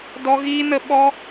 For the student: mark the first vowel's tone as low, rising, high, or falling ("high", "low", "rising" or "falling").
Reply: high